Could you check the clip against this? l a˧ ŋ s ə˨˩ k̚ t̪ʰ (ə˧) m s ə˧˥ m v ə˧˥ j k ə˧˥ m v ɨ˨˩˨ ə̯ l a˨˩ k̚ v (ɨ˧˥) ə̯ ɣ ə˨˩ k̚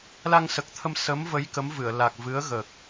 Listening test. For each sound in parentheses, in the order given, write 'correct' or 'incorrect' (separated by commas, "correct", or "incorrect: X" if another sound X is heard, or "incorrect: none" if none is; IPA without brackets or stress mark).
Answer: correct, correct